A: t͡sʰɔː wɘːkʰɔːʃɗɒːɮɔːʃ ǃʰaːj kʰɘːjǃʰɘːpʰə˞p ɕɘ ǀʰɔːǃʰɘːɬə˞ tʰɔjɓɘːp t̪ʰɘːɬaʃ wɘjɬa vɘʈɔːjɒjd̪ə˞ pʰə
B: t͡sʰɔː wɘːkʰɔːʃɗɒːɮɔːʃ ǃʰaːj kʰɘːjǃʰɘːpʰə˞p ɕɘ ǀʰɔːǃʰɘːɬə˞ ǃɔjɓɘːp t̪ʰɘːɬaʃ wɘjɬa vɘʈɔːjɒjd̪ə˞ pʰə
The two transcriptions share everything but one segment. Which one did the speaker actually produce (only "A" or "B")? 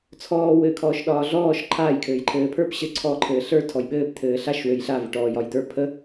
A